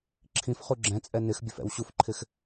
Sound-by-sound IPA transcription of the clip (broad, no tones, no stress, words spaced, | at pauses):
ǁʰĩfχu ɡ͡ǁɛ̃t͡sʼɛ nɪxbʲɵfɛ̰w ɕufǃʰɪx